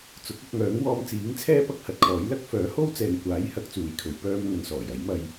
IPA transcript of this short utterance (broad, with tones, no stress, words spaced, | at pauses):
t͡sʊ˨˥k̚ɐ˧k̚ŋœː˨˥ŋ wɔː˧m t͡siː˨˥ŋt͡sʰɛː˥ pɐ˥k̚hɐ˨˥t̚kʰɔː˨˥j lɐ˥k̚ fœː˨˥ho˥w t͡sɛː˨ŋkʷaː˨˥j hɐ˨˥k̚t͡suː˨jkʰɵ˨˧ɥ pœː˧m ŋɵ˨˧nsɔː˨˩jɐ˨˥j mɐ˧j